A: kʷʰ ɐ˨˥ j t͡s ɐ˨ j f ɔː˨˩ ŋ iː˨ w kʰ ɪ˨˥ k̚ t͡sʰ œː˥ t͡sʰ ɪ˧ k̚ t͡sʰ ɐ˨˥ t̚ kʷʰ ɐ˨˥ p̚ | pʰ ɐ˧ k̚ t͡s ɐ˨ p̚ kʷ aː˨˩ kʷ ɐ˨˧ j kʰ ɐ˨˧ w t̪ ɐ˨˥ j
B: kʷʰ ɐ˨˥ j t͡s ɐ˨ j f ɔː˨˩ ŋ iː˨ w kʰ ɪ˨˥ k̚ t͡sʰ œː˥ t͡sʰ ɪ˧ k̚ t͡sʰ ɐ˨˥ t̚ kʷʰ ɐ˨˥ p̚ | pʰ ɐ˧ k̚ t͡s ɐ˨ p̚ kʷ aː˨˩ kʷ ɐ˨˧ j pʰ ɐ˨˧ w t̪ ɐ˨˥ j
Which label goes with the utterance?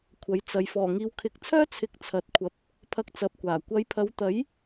B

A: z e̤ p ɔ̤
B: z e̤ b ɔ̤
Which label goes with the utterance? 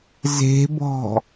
B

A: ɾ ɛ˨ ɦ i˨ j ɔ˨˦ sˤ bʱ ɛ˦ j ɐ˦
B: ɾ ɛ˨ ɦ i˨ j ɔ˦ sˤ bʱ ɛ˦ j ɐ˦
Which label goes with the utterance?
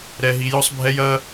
B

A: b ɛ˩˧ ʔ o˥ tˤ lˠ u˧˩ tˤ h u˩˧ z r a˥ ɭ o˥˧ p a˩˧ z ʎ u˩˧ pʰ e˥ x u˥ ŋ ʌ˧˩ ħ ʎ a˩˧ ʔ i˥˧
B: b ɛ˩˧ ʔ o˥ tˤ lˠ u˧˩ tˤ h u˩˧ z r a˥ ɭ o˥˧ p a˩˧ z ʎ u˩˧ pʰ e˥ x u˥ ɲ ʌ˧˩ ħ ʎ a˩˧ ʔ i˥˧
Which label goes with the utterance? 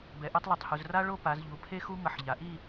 A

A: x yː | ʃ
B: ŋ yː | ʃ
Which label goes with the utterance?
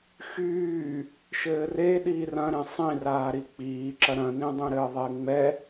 A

